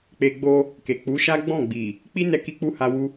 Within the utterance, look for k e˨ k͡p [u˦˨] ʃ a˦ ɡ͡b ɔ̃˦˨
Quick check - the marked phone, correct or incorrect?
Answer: incorrect: u˨˦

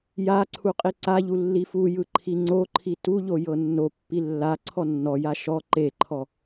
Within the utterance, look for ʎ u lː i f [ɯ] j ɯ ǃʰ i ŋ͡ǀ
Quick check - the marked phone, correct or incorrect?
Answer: incorrect: u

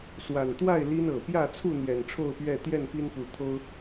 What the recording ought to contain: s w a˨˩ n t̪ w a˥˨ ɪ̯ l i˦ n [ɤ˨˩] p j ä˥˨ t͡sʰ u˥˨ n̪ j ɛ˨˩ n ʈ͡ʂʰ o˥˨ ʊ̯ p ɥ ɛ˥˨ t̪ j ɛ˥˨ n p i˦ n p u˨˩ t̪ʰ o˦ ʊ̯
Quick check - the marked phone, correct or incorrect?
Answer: correct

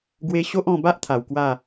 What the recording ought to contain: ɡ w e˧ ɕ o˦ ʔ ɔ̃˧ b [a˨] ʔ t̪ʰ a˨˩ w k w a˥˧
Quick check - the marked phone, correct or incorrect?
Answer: incorrect: a˦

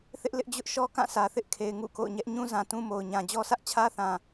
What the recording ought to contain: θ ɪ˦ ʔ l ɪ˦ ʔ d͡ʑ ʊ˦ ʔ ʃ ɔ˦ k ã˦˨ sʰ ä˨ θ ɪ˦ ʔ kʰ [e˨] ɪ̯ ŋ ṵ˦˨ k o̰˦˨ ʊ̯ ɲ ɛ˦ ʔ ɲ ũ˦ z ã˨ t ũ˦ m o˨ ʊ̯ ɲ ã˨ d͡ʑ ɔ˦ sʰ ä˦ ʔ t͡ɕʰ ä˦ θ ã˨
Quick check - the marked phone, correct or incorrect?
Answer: correct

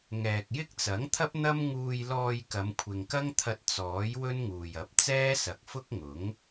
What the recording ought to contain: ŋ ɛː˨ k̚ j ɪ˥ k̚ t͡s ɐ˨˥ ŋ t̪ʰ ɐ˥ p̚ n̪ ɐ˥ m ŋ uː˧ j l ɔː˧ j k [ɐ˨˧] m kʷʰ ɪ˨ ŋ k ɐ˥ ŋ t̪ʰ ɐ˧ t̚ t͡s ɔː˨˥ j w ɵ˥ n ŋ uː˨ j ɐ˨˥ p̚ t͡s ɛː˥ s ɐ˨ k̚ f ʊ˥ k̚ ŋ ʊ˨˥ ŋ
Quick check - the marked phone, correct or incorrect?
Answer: correct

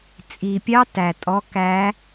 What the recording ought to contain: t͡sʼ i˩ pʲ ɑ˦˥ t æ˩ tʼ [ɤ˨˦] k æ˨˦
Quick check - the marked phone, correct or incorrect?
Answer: incorrect: ɔ˨˦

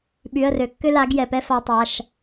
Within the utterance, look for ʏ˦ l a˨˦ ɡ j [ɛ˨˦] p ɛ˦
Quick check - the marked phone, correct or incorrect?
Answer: incorrect: ɛ˩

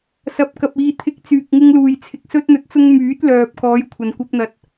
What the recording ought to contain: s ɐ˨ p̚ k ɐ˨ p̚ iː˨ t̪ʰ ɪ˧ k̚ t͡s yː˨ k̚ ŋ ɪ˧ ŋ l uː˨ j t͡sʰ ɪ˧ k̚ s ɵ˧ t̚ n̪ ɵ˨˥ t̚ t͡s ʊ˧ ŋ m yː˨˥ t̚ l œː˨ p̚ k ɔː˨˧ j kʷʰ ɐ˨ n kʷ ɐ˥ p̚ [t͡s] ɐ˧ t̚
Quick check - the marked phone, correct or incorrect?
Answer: incorrect: n̪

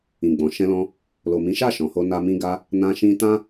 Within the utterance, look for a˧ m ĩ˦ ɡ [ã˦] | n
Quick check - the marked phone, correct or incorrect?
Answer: incorrect: a˦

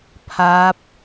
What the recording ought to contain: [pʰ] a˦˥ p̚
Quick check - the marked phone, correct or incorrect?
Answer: correct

